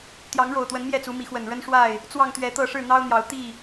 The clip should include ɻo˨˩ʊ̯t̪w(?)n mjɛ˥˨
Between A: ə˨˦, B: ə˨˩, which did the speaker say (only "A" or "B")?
A